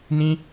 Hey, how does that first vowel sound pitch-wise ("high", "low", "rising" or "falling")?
high